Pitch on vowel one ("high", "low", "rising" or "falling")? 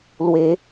rising